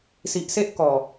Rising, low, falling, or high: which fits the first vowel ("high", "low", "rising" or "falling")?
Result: low